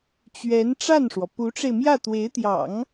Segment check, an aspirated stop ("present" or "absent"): absent